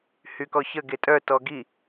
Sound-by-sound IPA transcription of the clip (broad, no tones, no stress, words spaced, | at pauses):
hykɔçə ɡetʼœ tɔɡi